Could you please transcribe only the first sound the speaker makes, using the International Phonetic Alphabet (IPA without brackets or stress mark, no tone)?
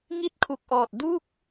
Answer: ŋ